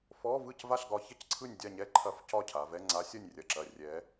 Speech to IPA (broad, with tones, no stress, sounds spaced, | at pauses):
f ɔ˧˥˧ v ɯ˥˨ c v a˥˨ ɬ ɡ ɒ˧˥ ç ɐ˥ c ǀʰ ɯ˥˨ nʲ dʲ a˥˨ ɲ ɛ˥˨ ǃʰ ɐ˥˨ f c ɒ˥˨ cʰ a˩˧ v ɛ˧˥˧ ŋ͡ǀ a˧˥ sʲ ɐ˥˨ nʲ rʲ ɐ˧˩ ǁ ɐ˧˩ rʲ ɛ˧˥